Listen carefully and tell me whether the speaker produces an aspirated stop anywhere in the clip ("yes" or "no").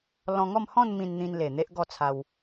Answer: yes